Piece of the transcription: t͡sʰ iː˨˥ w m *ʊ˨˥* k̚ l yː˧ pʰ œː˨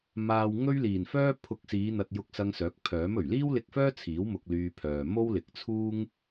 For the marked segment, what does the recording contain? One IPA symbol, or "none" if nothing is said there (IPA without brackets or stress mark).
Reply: ʊ˧